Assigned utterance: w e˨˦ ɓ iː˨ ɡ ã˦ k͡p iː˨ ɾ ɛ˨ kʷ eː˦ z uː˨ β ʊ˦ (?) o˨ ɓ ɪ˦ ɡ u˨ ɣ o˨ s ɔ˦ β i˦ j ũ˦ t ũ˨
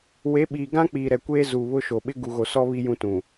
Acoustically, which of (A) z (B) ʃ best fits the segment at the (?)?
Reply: B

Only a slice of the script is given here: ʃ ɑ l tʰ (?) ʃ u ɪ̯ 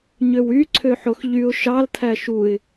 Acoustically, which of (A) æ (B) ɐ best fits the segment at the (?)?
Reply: A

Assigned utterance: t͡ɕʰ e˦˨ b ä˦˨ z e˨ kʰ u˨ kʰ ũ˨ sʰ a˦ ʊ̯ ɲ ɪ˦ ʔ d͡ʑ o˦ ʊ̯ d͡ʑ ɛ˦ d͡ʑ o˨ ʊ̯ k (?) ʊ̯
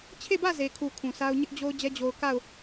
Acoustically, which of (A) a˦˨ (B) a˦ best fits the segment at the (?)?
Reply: A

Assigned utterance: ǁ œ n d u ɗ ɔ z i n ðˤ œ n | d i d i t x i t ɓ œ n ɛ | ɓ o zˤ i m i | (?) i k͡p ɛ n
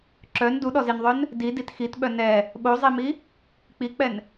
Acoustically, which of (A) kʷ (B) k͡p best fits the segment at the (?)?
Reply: B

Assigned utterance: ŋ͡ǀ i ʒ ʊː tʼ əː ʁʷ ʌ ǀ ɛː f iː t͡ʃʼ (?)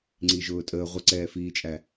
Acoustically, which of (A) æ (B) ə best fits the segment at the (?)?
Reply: A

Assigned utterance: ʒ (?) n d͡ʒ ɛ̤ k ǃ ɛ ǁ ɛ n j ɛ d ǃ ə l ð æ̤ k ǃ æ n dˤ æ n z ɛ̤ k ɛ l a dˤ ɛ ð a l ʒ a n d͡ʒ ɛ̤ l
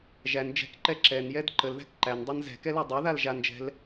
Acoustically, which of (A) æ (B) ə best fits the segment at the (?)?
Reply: A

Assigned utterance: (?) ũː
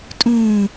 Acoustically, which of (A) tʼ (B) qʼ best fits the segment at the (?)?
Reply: A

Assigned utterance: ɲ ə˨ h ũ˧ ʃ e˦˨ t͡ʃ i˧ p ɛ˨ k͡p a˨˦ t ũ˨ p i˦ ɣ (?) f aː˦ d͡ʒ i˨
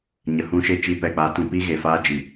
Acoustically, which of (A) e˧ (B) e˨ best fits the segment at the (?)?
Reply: B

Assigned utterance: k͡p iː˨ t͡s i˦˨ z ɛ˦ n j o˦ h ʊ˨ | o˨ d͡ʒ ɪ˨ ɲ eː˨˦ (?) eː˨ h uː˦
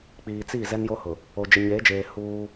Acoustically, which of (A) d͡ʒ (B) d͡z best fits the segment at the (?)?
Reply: A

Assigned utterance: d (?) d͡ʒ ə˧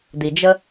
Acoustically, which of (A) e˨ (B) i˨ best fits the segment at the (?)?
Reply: B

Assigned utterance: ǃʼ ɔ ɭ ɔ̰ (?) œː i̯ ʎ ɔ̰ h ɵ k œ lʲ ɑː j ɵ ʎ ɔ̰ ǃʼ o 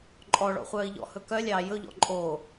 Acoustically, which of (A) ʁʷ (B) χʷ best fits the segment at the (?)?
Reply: B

